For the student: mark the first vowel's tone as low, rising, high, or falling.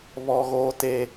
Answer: high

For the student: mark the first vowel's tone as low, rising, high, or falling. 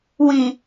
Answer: low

